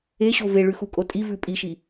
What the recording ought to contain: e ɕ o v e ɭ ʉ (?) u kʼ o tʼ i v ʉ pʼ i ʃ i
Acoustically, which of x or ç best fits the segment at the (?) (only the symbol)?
x